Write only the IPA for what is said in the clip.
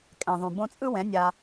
kʼ ɛ̃˨ ðˤ ũ˨ b õ˧ t͡sʼ ɯ˦ w ɛ̃˨˦ nʲ a˧

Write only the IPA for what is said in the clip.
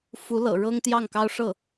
f u˧˥ l ɤ̰˨˩ ɻ ɤ˥ ŋ t̪ j ɑ˥˩ ŋ k ɑ˥ ʊ̯ ʂ ɤ˥˩

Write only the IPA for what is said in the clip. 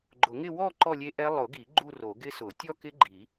ɡ͡ǃ ʊ˨˩˦ ŋ ɪ˥˧ w ɔ˥˧ ǃ ɔ˥˧ lʲ e˦˥ ʔ ɛ˦˥ lˠ ʊ˨˩˦ ɡ i˨˩˦ ɡ͡ǃ u˥˧ r o˨˩˦ ɡ ɪ˦˥ s ʊ˨˩˦ tʲ ɔ˥˧ k ɪ˦˥ ɡ͡ǃ i˨˩˦

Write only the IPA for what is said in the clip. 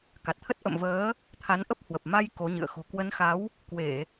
k a˨˩ t̚ t̪ʰ ə˦˥ t̚ ʔ ə̰˧˨ m v əː˨˦ | t̪ʰ a˨˦ n ʔ ə˦˥ p̚ h w ə˨˩ p̚ m a˧ j k o˨˦ ɲ ɨ̰˧˨ ə̯ x o̤˨˩ k w ə˨˦ n x a˨˦ w | k w e˧˩˨

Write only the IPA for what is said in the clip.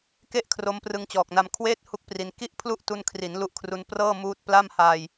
k e˥˩ ʔ kʰ r o˦˥ m p r ɯ˧ ŋ t͡ɕ ɔː˨˩ k̚ n a˧ m kʰ w eː˥˩ t̚ h u˥˩ k̚ p r i˧ n k i˥˩ ʔ pʰ l u˥˩ ʔ t u˧ n kʰ r i˩˦ n l u˦˥ ʔ kʰ r u˧ n p r ɤː˥˩ m uː˦˥ t̚ p l a˥˩ m h aː˧ j

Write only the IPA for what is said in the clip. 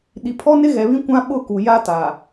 ɗ i˨ pʰ ɔ˦ n ɪ˦ ɣ ɛ˨ β ĩ˦ kʷ ã˦ ɓ ʊ˦˨ k u˨ j a˦ t a˨

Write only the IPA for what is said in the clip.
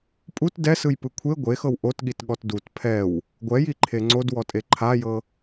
pʼ u t d ɛ s ɯ j p ɯ kʷʰ e ɡʷ e x ɤ w ʔ o t ɠ i t ɠ ɔ t d u t pʰ ɛ w | ɡʷ ɛ j i ǃʰ e ŋ͡ǀ o d w ɔ tʼ e ǃʰ a j ɤ

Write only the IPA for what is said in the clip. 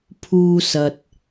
pʰ uː˥ s ɐ˧ t̚

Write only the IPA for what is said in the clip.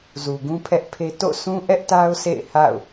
z u˨ ɡ ũ˦ pʰ ɛ˦ ʔ pʰ e˦ t o̰˦˨ s ũ˦ ʔ ɛ˦ ʔ t a˦ ʊ̯ s ḛ˦˨ ɪ̯ h a̰˦˨ ʊ̯

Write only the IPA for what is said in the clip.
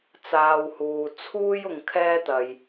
t͡s aː˧ w h uː˨ t͡sʰ uː˥ j ʊ˧ ŋ kʰ ɛː˥ t̪ ɐ˨ j

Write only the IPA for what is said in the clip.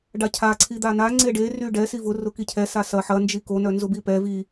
ɖ a cʰ a ǀʰ i d̪ a n a ŋ͡ǀ e ɖ e r y ɖ ɛ s i v ʊ r ʊ k i cʰ ɛ s a s ɐ ħ ɐ n d͡ʒ i k o n œ n z ʊ b i p ɛ v i

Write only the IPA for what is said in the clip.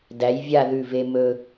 d æ˩˧ j vʲ a˥˧ ð ʉ˧˩ v e˧ m ɵ˧

